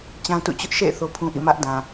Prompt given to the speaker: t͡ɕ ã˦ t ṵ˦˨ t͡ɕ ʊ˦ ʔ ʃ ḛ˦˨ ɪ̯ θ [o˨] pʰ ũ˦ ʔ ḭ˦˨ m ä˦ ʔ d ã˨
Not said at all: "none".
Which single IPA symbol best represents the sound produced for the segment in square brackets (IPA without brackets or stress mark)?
o˦